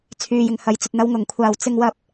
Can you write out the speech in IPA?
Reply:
t͡sʰyː˨jɪ˨ŋhɐ˨˧jt͡sɵ˨t̚ n̪ɐ˨˧wŋʊ˨˩ŋ kʷʰaː˨˩wt͡sɪ˧ŋwɐ˧p̚

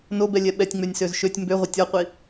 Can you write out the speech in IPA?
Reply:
nobɛ lʲɛɓɛtʲŋ͡mønʲ søzʃøtʲ mbøʁʷə tʲɔqʷi

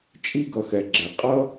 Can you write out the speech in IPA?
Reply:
t͡ʃʼi˥ɡʌ˨xɛ˩ɡ͡ǁɛ˩ qʼʌ˥

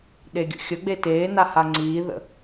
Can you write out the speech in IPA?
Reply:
ɗeɡʲə̰xʲəɡ͡be teːna haŋ͡ǀiːðə̰

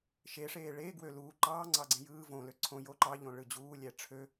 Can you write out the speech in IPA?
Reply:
ʃeʂeː ɭeː ɡwø luː ǃɑː ŋ͡ǀɑɡ͡ǀẽjɯː võ løǀʰõ jo ǃɑʎõ ɭɯd͡ʑuːlʲæ ʈ͡ʂʰø

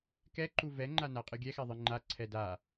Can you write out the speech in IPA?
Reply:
kɛǃu vɛŋ͡ǃa naqʼɨɡʲɛxɛ ðˤɨŋ͡ǃaǀʰɛ da

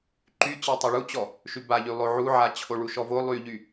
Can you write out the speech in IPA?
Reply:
ǃyt͡ɕɜ tˤyɭut͡ɕɔ | ʃybaʎy lˠoʕuʕa t͡ɕʰoɭuʃɔvo lˠyʎy

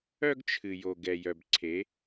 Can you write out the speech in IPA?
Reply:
œ˦ɡt͡ʃʰɨ˨jo˨ ɡɛ˨jœ˨bǀʰe˨˦

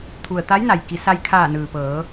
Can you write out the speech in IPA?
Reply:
t̪ʰu˩ə̯ t̪a˧˥jna˩j ki˩˧sa˧jkʰaː˧˩nɯː˩ pɤː˩˧

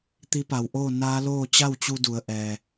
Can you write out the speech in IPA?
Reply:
t̪i˧˥pa˩˧wʔoː˥˨ naː˧˥loː˥˨ t͡ɕa˥˨wt͡ɕu˧du˩˧ə̯ ʔɛː˩

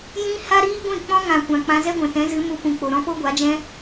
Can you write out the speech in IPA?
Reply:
jĩ˦ ha˦ɾiː˦ɡʷĩ˦˨ k͡pɔ̃˦ŋã˨ kʷã˨k͡pã˧zɛ˦ɡʷɛ̃˨ tɛ̃˨˦zɨ˨˦ mu˧ pũ˨k͡po˨ɾɔ̃˦ po˦ɡʷa˨˦d͡ʒɛ̃˦

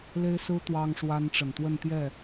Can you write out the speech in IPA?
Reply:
le˥ɪ̯sɹ̩˥ t̪wɑ˥ŋʂwa˥nʈ͡ʂə˨˩n t̪wə˥˧nt̪jɛ˥˩

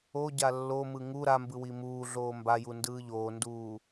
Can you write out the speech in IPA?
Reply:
o ɟalːomɯ ŋu ɾambɯ wimuːɮoː mbaju ndɯːʎoːnduː

